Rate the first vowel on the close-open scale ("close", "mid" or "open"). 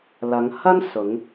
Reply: open